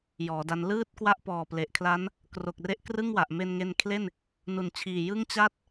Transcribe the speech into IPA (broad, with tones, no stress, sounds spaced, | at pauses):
j ɔː˩˦ d a˦˥ n l ɯː˥˩ t̚ k w a˥˩ ʔ p ɔː˨˩ p l e˨˩ ʔ kʰ l a˦˥ n | k r o˨˩ k̚ r e˦˥ ʔ k r ɯ˥˩ ŋ w a˨˩ ʔ m e˧ n ŋ e˧ n kʰ l e˥˩ n | n u˨˩ n t͡ɕʰ iː˨˩ j ɯ˥˩ ŋ t͡ɕ a˥˩ t̚